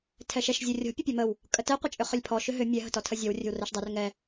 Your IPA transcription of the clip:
tʰɛʃɛʃ zʲorʲɔ̤ pʲəpʲɔməw | kʼətɛ qʷət͡ʃʼʏχʏlʲpʰɔ ʃʏɦʏ mʲɛ ɦə̤tɔtʰəzʲɔw rʲə̤wrɛʃdˤʏr ŋɛ

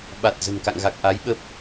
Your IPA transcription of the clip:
ɓa˨˩t̚ zə̤˨˩nka̰˧˨ŋɣa˨˩k̚ ʔa˨˦jɓə˦˥p̚

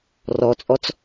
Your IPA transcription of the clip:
rɔt͡sʼɔt͡s

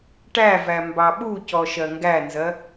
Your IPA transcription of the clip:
ʈævæ mbɑɓucɔ ʃɜŋɡænzɜ

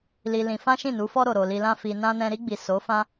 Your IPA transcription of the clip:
li˧lĩ˧ fã˦ʃĩ˦˨nu˨˦fɔ˦ ɾo˧ɾo˧li˦ lã˦fi˧nã˦nɛ̃˦ ɾi˧ɡ͡bi˨ so˨˦fã˦

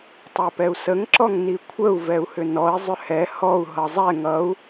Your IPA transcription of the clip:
tˤɛpɛu̯səŋ ǁɔŋnikʷʰəu̯ vɛu̯hʏnɔi̯ zˤʏhɛ hɔu̯ ɦʌzˤɛ ŋʌu̯

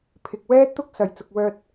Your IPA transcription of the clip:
pʰɪ˨k̚wɛː˥t̚t̪ʊ˥k̚ sɐ˨j t͡sʊ˨k̚wœː˧t̚

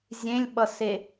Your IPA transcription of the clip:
zʲẽlʲɓʌse

